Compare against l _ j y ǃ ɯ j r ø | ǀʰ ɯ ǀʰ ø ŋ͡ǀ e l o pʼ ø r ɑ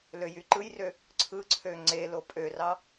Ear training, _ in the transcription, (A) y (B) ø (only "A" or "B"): B